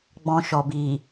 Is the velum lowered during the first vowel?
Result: yes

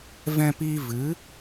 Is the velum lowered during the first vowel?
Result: yes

